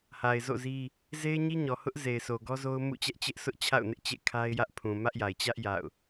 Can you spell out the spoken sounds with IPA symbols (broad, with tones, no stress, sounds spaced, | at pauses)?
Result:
h a˨ ɪ̯ z o̰˦˨ z i˦ | z e˦ ɪ̯ ɲ i˦ ɲ ɔ˨ h ʊ˦ ʔ z e˨ ɪ̯ s o˨ ɡ ɔ˦ z o˦ ʊ̯ m ṵ˦˨ t͡ɕ ɛ˦ ʔ t͡ɕ ɪ˦ ʔ s ʊ˦ ʔ t͡ɕʰ a̰˦˨ ʊ̯ n ɪ˦ ʔ t͡ɕ ḛ˦˨ kʰ a˦ ɪ̯ j ä˦ ʔ pʰ ũ˨ m ä˦ ʔ j a˨ ɪ̯ t͡ɕ ä˦ ʔ j a̰˦˨ ʊ̯